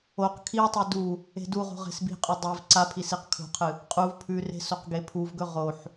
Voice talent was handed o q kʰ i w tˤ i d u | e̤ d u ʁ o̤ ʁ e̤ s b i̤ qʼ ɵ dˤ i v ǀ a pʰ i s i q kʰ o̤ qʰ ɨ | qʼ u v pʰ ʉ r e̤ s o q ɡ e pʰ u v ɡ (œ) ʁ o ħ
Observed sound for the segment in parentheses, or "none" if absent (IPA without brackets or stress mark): ɵ